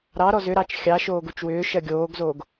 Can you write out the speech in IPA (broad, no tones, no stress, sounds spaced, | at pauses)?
ɾ ɑ ɾ ɔ z ʏ ɾ ɑ t͡ʃ xʲ ɑ ʃ oː ɡ u t͡ʃ w ʏː ʃ ɜ ɡʲ oː ɡ z oː ɡ